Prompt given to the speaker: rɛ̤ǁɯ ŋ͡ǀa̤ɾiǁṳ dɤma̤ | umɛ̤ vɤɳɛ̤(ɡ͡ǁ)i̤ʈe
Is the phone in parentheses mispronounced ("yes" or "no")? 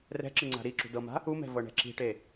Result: yes